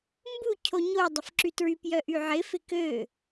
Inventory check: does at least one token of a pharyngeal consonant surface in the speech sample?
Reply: yes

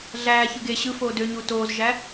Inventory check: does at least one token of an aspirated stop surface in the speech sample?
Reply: no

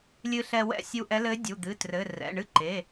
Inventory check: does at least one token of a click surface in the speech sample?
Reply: yes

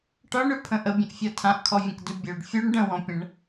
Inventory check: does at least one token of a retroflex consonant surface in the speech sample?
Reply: yes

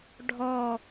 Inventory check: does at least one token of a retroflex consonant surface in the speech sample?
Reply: yes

